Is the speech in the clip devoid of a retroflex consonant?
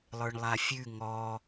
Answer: no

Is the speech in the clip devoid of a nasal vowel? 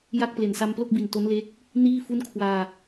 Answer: yes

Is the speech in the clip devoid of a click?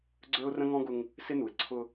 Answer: no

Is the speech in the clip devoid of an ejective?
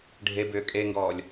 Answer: no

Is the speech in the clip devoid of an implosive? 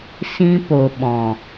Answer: no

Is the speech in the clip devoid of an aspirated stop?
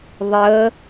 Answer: yes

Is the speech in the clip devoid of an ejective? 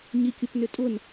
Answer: no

